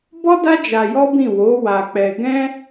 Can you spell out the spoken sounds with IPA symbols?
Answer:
bɔ˦da˦ d͡ʒa˧jɔ˦ bĩ˦˨ wo˨˦ wa˧k͡pɛ˧ ɡɛ̃˦

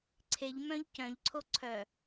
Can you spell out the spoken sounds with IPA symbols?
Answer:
ǀʰeʎ mœ̃ʎcœ̃ʎǀʰo ǀʰœ

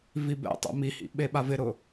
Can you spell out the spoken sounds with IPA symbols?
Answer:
vibɛ̰tˤɛ̰ mihḭ ɓeɓavɪɾʊ

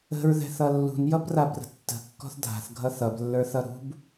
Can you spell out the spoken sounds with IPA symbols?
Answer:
ə̤ɹðɛ̤θʌ lːṳnjʌbrabrə̤ tːə̤kːɔ̤θ dʱa̤θɡʱʌ θʌblːə˞θʌ ɾṳb

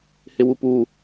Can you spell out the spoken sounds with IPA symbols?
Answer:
hɪwupu

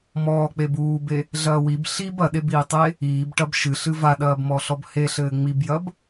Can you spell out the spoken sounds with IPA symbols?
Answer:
mɔːk͡peb uːbe | ɮɐːwib ɬib ɐɗebiːtˤe | iːb ʈɐbʃɨ ɬɨvaɗɐːb mɔɬɔbheɬɘː ŋ͡mibjɐb

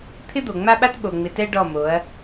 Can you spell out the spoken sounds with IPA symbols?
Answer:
t̪ʰɪ˦d̪o˨ŋ͡ma˦ɓa˦t ɓo˨ŋ͡mɪ˨tɛ˦ ɖɔ˦˨mo˨˦ɐ̯

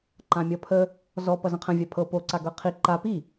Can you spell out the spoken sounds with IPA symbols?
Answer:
ǃãmʲʌpʰə | zɔ pʌzə̃qʰə̃ vʲapʰɤ po ǀaɡɤqʰi ǃa pi

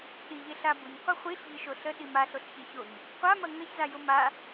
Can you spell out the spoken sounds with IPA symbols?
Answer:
ɗiʎe ɬabʊɲ qʷɐχʷiɬʎə ʃoɬə ɗimaɬoɬ çeçoɲ | qʷamɐ ŋɐçza jʊma

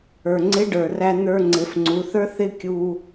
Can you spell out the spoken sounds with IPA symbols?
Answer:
ə˞˩ŋ͡ǀɪ˧˥ɖə˞˩ræ˧ n̪ə˞˧ŋ͡ǀɪ˩˧fŋ͡ǀu˩˧θə˞˥ θɪ˥ kʲu˧

